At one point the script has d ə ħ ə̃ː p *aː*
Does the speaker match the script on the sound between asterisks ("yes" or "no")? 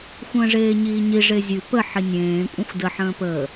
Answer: no